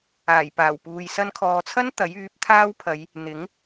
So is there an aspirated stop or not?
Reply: yes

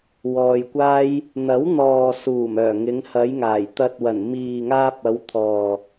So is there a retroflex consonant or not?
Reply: no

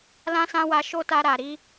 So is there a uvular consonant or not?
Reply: no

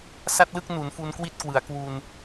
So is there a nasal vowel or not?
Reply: no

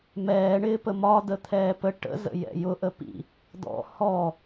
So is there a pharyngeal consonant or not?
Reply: no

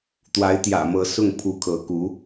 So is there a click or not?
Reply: no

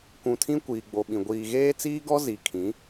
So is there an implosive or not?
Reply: yes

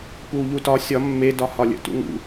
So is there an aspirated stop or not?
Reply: no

